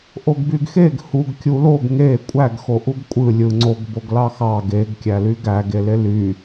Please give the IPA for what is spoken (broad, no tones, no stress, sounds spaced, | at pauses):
ʔ o ɡ b y ɡ x e ɡ h u ɡ kʲ u l o ɡ ŋ e kʷʼ æ ɡ x o ʔ u ɡ kʷʼ ɯ lʲ ɯ ŋ͡ǀ o ɡ b o ɡ l ɑ x ɑ ɡ e ɡ kʲ æ l y ɡ æ ɡ e l e l y